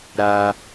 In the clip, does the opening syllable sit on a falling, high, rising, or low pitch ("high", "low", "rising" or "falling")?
high